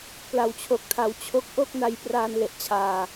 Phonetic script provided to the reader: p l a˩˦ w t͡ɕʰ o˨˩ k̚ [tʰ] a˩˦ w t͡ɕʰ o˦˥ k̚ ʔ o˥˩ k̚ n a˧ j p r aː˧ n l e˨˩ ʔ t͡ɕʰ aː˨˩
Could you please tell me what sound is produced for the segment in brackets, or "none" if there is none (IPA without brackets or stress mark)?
tʰ